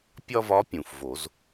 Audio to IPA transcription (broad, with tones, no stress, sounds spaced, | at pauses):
pʲ ɒ˥ v ɒ˧˥ pʲ ũ˩ f v o˨˩˦ z